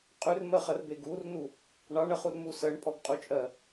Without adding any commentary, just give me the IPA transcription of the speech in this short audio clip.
qʼ ʉ r m ɜ χ ɜ r b e ɡ u r n u | ɳ ɑ ɳ ɜ χ u r m u s ɜ ɳ pʼ ɔ ɡ qʼ u t͡ʃʼ ɜ

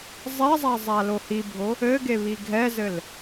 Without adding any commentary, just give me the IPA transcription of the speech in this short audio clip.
zˤ ɛ zˤ a zˤ a l o h i bʱ o | ɘ ɡ e β i ɡʱ ɛ z ɘ l

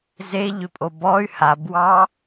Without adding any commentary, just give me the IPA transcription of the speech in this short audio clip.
z e ʎ ʏ pʼ o b ɔ y̯ h a b w ɑ

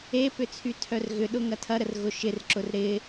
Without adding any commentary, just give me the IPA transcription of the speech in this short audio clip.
e p ʏ t͡sʰ y tʰ œ r ɣ ʏ ɗ ʊ ŋ ɐ tʰ ɐ ɾ ə r ɣ ʊ ʃ ɪ r ǁ ʊ r ɾ ɪ

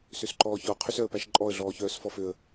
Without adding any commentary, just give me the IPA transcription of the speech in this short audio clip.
s ø s ǃ ɔː ç ɔ qʰ y s œ ə̯ p æ ʃ ǃʼ ɔ ə̯ ɮ ɔː ç œː s f ɔ f ø ə̯

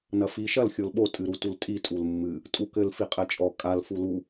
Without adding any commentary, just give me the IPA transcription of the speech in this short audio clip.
n ɐ f i ʃ ɐ l xʲ o l ɓ o tʼ ɨ ɾ u t u l tʼ i tʼ u l mː ɨ | tʼ u k ɘ l f i qʼ ɛ t͡ʃʼ ɔ kʼ a l f u l u

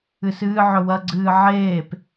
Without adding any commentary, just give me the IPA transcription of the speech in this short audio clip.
ɨ s ɨː ʕ ɵ w ɐ ɡ͡ǀ ɨː ʕ eː p

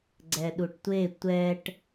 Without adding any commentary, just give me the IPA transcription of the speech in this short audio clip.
ɡ͡ǀ ɛ ɗ u ʈ tʷ e tʷ ɛ ʈ

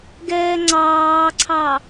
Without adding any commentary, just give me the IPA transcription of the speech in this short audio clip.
ɡ ɛː ŋ͡ǀ ɑː ǀʰ ɑ

